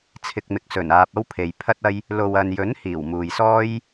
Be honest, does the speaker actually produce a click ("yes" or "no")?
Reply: no